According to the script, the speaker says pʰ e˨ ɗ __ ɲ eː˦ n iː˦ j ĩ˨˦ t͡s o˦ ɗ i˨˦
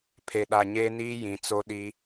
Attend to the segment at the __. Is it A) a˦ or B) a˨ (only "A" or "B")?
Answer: B